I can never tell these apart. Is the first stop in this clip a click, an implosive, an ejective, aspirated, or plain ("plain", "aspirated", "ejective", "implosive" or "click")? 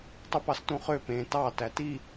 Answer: plain